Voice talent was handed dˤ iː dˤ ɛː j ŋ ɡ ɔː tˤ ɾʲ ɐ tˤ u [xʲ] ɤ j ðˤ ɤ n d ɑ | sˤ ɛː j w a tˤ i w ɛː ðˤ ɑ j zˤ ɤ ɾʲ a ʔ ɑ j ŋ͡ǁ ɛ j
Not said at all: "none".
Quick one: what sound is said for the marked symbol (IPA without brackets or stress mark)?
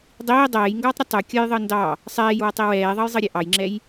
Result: kʲ